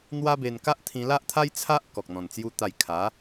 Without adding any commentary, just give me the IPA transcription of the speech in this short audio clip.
n̪ w a˦ b e˧ n k a˦ ʔ t̪ʰ ĩ˧ l a˦ ʔ t̪ʰ a˦ j t͡sʰ a˦ ʔ k ɔ˨ k̚ n̪ ɔ̃˨˩ n t͡s j u˧ t̪ a˨˩ j kʰ a˨˦

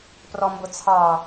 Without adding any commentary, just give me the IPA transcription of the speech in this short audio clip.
p r ɔ m b ʊ t͡sʰ ɑ

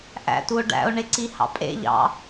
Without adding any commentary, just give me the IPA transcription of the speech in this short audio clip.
ʔ æ̰ t u o̯ ɖ æ̰ o̯ ɳ e ǀ i h ɑ̰ pʼ ḛ ʎ ɑ̰

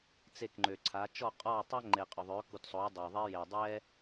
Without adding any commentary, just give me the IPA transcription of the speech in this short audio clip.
t͡s e˦˨ k ŋ͡ǃ ø˨ ǀʰ a˨˥ t͡ʃ ɔ˦˨ qʼ ɔ˦˨ tˤ a˥ ŋ͡ǃ e˨ qʼ ʏ˨ ðˤ ø˨˥ k u˨ t sˤ o˨˥ j dˤ o˨ ðˤ e˥ j e˨ dˤ ɛ˥

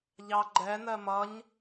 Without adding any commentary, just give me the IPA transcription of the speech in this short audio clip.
ʎ ɑ ɡ͡ǃ ɛ n ɜ m ʌ ɲ

